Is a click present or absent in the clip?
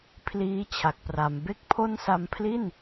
absent